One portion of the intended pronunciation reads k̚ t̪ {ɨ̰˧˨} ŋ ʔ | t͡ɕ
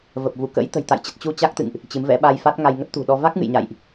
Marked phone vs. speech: correct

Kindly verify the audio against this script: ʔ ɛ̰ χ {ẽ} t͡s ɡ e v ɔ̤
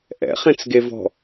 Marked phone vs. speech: correct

